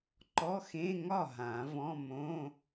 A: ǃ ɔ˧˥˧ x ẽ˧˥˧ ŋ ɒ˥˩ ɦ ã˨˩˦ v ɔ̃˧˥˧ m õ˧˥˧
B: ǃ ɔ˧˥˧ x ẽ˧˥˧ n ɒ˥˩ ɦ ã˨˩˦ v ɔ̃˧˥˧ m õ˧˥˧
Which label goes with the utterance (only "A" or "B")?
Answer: A